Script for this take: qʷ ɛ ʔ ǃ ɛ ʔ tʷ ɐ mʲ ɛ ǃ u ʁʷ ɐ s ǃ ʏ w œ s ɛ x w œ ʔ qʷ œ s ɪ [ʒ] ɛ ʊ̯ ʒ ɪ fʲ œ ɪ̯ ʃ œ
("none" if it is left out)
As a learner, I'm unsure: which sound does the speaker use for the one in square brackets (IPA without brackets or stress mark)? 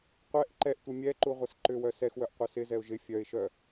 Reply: z